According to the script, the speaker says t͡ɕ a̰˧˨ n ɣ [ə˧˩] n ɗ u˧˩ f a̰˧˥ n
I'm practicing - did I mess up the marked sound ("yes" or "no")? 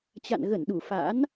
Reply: no